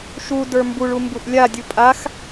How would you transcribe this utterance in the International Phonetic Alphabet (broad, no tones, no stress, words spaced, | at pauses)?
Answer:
ʃu də˞mbuɭu mbuʔlʲadʲu pʼax